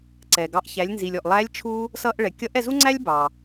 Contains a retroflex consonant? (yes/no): yes